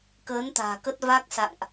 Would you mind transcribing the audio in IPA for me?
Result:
kəː˨˦nt̪a̤ː˨˩kə˦˥t̚ va˦˥k̚sa̰˧˨ŋʔ

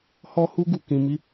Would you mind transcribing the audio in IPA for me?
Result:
hɔ˦hu˦ ɡu˧kĩ˧mi˦

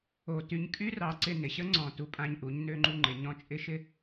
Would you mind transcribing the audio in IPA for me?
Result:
o˧ ty˧ɲkʼy˦rɑ˧ǀɪ˧ nɪ˨ɕə˦ ŋ͡ǀɔ̃˧ tu˧pʼã˧ɲ ʔu˨˦ɲ nø˧ŋ͡ǃu˧ŋ͡ǃɪ˨ ɲɔ̃˦t͡ʃʼɪ˦ ʃɪ˦

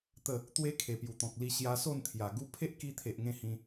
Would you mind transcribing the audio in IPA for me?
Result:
t̪ə˥˧ | t̪we˦kʰe˨˩pju˨˩t̪ɔ̃˨k̚ li˧ɕja˧ so˥˧nt̪ʰja˨˩ ɡu˦ pʰe˦ʔki˧t̪ʰe˨ʔ ŋẽ˥˧hĩ˧

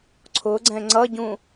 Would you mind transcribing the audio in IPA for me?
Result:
ǀʰʊɡ͡ǀɛ̃ ŋ͡ǀʌɟũ

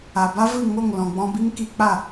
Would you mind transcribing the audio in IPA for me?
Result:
a˨ba˦vɨ˦˨ ŋo˦˨ŋ lɔ̃˨ɡ͡bɔ̃˧bi˦m ki˧k͡pa˦˨

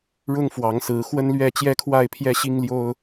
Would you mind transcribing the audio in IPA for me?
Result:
ɻʊ˦ŋfwɑ˨˦ŋsɹ̩˨˦ xwə˦nlɥɛ˥˨ t͡ɕjɛ˦kʰwa˥˨ɪ̯pʰjɛ˦ɕi˦ŋ ljo˦ʊ̯

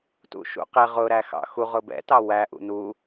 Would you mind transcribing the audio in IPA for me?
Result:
tṵʃṵqɪ ʁʊ ɾæxɑ̰xu ʁʊbɛ̰ tɑwæ ʔṵnu

